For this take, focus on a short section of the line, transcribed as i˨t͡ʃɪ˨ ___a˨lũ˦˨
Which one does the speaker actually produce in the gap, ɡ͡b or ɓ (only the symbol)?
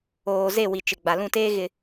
ɡ͡b